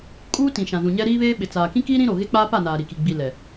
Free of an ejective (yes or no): no